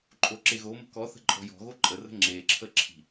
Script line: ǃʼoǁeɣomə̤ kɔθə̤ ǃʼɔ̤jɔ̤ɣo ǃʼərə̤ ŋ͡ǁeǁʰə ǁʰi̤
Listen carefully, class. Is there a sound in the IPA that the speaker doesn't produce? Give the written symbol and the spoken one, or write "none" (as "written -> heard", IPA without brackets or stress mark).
none